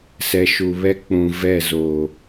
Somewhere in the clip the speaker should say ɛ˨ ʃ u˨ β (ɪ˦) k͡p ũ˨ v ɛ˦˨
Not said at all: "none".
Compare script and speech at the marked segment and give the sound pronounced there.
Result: ɛ˦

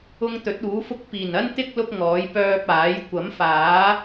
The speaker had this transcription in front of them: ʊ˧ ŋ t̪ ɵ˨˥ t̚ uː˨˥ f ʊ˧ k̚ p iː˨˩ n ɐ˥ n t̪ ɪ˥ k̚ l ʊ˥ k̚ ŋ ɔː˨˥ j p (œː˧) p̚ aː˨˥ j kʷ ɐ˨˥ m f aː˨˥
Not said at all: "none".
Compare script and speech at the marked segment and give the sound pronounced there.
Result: œː˧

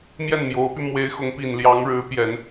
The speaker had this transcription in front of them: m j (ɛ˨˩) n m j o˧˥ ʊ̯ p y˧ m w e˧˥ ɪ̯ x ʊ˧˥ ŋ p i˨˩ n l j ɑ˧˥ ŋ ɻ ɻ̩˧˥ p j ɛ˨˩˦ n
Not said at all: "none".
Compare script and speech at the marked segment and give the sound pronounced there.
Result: ɛ˥˩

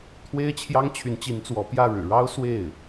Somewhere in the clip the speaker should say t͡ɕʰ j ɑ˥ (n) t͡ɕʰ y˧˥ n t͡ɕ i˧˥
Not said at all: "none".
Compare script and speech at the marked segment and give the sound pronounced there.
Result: ŋ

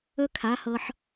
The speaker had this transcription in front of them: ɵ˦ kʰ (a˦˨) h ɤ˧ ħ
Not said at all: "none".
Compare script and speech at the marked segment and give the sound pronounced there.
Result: a˨˦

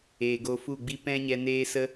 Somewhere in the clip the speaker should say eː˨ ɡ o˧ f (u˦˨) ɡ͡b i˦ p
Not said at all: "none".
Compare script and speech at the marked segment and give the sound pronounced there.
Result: u˦˨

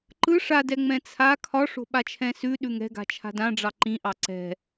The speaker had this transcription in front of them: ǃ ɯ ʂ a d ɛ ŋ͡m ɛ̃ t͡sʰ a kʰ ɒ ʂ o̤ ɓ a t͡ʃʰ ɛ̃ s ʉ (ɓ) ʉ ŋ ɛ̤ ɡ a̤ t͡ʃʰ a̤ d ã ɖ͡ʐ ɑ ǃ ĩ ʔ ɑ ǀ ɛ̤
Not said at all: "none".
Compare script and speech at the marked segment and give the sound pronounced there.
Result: ɗ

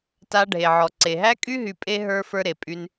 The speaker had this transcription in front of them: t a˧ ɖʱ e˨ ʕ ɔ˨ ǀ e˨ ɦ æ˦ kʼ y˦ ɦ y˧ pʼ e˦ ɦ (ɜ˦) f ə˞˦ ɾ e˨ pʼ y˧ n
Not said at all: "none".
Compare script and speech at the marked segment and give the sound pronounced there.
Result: ə˞˦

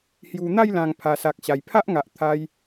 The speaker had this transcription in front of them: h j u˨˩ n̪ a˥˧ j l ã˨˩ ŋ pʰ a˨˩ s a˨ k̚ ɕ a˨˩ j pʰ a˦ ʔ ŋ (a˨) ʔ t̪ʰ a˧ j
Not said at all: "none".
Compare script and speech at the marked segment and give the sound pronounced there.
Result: a˨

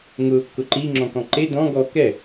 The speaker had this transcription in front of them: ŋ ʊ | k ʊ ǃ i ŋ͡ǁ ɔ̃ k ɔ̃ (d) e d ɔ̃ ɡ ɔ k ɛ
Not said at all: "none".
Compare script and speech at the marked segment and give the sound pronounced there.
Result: ǃ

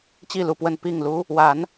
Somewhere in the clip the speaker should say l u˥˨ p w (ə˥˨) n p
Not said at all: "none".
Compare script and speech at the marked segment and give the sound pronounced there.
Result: ə˥˨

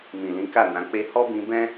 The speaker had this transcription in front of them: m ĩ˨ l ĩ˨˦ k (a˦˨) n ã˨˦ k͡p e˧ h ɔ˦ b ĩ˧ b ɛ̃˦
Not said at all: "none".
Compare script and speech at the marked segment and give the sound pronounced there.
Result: a˦˨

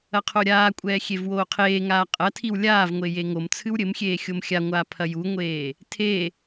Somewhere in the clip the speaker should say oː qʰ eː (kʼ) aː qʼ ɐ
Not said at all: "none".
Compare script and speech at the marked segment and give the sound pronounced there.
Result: ŋ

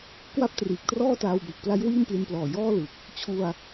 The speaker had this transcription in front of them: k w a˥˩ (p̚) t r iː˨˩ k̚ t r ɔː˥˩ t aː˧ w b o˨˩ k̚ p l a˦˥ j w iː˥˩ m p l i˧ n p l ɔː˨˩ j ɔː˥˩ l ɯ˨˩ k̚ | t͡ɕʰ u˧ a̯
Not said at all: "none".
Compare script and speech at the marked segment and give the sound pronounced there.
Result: p̚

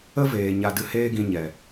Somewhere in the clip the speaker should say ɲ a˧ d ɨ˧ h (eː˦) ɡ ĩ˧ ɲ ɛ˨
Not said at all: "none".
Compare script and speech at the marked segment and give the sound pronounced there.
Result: eː˦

